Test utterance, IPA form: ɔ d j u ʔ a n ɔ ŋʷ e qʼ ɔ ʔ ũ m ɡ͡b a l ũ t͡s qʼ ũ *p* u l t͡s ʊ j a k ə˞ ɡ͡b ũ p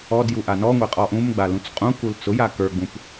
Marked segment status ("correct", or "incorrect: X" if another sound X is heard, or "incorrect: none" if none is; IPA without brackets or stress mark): incorrect: k